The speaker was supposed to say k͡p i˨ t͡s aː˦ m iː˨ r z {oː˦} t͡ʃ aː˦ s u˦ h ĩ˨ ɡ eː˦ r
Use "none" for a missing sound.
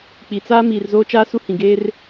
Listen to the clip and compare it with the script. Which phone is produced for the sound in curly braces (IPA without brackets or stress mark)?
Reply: oː˦